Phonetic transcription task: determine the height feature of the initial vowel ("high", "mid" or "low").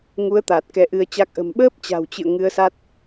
high